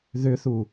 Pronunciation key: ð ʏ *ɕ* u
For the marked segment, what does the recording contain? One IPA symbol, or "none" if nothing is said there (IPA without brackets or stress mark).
θ